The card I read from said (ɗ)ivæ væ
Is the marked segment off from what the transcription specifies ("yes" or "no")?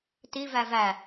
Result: yes